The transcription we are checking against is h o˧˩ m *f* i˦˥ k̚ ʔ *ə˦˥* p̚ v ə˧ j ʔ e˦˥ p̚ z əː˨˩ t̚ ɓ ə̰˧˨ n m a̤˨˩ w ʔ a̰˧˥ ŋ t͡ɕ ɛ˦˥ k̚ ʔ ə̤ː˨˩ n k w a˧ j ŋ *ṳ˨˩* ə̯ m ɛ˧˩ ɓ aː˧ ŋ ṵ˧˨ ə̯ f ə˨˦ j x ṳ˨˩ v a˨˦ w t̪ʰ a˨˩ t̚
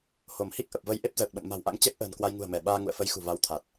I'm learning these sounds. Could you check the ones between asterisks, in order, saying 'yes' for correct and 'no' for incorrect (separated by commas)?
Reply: no, no, yes